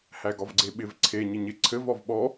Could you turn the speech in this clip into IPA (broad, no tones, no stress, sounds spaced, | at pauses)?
h æ ɡ ɒ v ɡ͡ǀ e ɓ ɪ v ǀʰ e ɲ ɪ ɲ ɪ ǀʰ ɘ v ɒ v ɓ ɔ